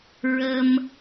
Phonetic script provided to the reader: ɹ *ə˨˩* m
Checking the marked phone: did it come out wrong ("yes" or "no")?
yes